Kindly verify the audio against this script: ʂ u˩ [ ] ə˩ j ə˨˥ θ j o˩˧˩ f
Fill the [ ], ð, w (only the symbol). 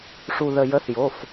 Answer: ð